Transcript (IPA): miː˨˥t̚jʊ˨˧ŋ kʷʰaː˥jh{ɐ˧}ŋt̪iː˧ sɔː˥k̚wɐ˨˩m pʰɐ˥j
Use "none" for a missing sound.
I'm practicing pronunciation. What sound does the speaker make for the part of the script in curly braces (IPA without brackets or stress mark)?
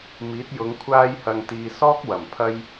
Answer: ɐ˧